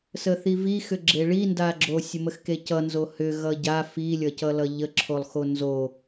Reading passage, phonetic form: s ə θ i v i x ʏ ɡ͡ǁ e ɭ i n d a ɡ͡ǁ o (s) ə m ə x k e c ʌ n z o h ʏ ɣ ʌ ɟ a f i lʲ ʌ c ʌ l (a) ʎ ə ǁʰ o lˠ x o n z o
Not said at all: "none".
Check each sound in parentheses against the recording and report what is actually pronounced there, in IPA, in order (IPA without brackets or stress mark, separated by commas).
sʲ, ʌ